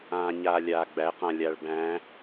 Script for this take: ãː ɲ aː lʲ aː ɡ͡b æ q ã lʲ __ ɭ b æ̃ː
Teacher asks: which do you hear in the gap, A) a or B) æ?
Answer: A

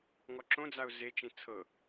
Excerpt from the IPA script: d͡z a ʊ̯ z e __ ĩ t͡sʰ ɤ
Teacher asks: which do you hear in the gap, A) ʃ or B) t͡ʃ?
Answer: B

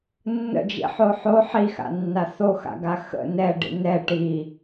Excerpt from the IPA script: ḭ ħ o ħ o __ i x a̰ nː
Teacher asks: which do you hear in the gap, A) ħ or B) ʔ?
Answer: A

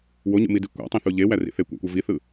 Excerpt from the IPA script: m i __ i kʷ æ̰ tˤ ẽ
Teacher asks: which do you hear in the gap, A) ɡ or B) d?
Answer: B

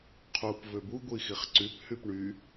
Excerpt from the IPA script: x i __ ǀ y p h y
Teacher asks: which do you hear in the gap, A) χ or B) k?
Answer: A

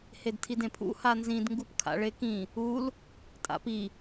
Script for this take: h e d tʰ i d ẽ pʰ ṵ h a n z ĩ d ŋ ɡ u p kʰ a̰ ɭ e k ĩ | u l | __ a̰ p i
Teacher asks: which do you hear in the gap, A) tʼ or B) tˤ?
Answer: A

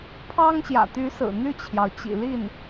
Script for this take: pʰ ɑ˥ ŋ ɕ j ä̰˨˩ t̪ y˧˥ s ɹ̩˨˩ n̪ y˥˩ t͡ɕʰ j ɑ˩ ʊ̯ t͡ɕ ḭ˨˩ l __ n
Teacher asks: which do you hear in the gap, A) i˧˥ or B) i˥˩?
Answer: B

